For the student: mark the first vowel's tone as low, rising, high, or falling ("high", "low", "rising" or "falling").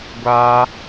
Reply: high